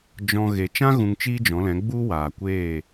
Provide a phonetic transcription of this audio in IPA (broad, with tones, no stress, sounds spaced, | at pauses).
d͡ʒ ɔ̃˧ ɣ e˨ t͡ʃ ã˦ ɣ ũ˧ ŋ t͡ʃ iː˦ d͡ʒ ɔ̃˨˦ l ɛ̃˨˦ ɡ͡b u˦ w aː˨ kʷ eː˦˨